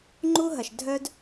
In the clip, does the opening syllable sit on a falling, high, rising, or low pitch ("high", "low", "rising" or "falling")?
high